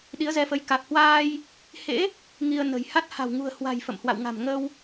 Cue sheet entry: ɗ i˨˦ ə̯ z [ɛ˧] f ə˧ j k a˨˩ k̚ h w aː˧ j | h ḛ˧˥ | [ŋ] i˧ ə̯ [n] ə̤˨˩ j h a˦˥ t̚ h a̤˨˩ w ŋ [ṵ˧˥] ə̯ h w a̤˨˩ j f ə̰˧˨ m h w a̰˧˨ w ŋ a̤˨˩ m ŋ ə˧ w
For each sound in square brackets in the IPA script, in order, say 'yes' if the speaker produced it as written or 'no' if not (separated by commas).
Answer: yes, yes, yes, no